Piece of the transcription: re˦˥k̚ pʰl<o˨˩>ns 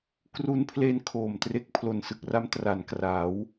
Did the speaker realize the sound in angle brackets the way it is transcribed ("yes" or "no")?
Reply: yes